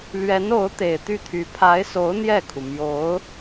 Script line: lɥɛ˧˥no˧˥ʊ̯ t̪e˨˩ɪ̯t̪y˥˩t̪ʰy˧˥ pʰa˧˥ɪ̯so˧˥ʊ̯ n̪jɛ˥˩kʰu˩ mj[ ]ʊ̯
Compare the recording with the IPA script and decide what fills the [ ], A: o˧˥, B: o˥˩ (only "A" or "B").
A